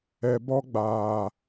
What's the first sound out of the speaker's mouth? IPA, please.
ɛ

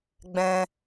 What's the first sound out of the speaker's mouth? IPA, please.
ɡ͡b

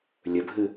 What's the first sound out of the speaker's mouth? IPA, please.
lʲ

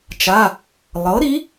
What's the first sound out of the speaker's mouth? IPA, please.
t͡ʃ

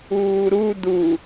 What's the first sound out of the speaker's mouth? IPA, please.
uː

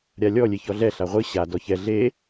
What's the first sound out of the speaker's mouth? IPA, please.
ɾʲ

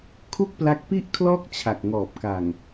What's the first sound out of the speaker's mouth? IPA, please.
kʰ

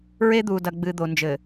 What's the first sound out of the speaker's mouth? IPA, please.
ɹ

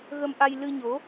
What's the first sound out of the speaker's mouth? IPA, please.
ɣ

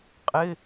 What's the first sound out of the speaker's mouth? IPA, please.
qʼ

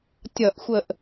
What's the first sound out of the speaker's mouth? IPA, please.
tʲ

